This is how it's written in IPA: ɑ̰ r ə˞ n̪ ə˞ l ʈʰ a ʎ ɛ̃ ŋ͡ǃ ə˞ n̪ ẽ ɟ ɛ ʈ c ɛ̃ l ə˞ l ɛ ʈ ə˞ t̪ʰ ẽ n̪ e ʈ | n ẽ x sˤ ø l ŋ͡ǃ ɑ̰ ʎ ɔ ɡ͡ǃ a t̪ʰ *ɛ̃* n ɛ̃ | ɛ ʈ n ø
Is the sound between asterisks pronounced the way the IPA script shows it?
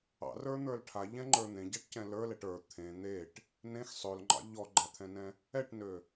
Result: yes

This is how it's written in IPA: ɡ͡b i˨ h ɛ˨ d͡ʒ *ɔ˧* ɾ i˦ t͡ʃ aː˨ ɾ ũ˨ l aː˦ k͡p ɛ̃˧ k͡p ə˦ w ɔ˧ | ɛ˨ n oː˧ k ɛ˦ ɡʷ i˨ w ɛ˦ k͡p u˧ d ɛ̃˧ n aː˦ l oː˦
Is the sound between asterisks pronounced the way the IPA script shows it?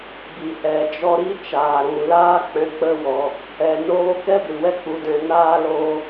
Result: yes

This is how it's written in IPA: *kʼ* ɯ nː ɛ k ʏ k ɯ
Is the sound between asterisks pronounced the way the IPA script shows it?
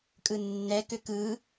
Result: yes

